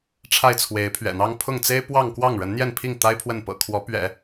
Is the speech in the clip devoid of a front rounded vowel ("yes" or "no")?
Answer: yes